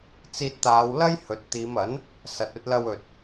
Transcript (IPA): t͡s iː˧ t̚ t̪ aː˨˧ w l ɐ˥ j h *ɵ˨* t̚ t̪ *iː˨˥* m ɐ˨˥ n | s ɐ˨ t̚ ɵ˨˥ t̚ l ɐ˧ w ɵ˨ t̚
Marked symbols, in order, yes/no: yes, no

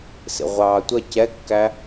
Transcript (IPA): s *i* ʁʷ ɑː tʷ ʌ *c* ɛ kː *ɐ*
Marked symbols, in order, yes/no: no, yes, no

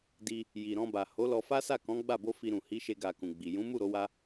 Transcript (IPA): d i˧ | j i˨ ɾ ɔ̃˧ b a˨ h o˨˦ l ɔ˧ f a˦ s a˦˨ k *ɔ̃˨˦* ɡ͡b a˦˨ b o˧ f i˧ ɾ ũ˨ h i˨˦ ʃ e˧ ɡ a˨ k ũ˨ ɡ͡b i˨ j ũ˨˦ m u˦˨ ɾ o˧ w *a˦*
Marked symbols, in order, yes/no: yes, no

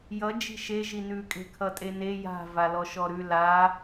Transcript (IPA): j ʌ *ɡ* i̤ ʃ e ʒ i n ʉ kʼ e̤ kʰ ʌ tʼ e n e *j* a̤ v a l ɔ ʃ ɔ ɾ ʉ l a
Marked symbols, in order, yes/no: no, yes

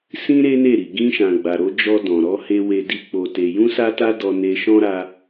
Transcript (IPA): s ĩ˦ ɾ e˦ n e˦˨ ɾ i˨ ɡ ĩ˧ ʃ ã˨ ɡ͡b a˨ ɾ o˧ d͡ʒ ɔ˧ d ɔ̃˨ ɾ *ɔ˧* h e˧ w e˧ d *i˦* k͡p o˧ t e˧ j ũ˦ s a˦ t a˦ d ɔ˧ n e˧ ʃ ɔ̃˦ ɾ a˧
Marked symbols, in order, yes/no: yes, yes

